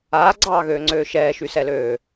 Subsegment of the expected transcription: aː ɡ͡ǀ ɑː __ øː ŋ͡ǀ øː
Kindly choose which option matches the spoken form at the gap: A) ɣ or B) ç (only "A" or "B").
A